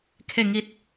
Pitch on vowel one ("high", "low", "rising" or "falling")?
falling